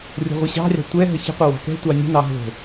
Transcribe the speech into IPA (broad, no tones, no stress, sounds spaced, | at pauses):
rʲ o̤ ʁʷ ə ɕ ɑ̤ rʲ ɑ̤ tʷ ɛ ɦ ə ç ə̤ qʷ ə w ɑ̤ k ɛ̤ tʷ ɑ nʲ ə̤ n ɑ ɦ o̤